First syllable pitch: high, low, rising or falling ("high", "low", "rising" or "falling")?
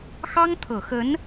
high